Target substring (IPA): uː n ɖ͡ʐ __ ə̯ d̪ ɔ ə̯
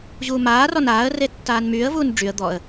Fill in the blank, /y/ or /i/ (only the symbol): y